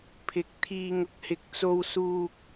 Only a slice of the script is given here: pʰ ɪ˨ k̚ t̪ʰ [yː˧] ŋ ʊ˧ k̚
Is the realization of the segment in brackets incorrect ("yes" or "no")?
yes